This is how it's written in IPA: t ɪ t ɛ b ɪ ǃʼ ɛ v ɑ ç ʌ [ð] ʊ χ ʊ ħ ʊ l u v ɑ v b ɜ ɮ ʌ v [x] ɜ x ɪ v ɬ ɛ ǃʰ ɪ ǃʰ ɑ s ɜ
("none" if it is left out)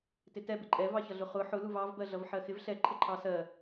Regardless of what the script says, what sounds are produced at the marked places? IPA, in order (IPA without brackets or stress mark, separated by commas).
ɮ, ħ